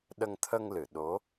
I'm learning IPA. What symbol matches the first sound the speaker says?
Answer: ɗ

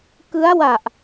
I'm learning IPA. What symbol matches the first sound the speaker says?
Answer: k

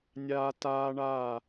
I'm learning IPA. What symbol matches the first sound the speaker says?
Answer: nʲ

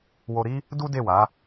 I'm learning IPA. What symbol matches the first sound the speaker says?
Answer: w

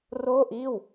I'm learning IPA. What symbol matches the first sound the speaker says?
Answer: r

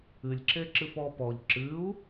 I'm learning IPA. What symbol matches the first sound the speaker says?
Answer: ɨ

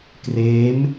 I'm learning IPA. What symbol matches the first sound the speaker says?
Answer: k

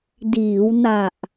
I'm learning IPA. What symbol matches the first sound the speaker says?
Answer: d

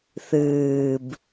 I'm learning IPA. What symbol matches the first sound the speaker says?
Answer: θ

